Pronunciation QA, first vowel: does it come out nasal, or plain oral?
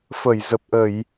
oral